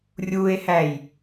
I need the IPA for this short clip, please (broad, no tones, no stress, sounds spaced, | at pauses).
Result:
rʲ u e̯ h æ j